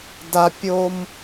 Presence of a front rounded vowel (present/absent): absent